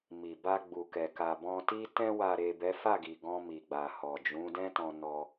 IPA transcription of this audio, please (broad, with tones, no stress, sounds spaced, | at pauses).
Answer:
m i˨ b a˧ ɡ͡b u˨ k ɛ˨ k a˨ b ɔ̃˧ t i˦ t ɛ̃˧ w a˨ ɾ e˨ b ɛ˨˦ f a˦˨ ɡ i˨ ɡ ɔ̃˧ m i˨ ɡ͡b a˨ h ɔ˨ d͡ʒ ũ˨˦ d ɛ̃˦ t ɔ̃˧ n ɔ˧